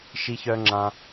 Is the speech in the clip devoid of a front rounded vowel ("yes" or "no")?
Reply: no